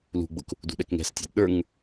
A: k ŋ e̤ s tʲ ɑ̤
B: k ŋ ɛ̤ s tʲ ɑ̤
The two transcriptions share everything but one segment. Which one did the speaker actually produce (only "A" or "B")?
B